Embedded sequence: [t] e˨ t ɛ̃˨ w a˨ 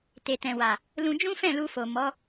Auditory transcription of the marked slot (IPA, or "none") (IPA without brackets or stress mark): t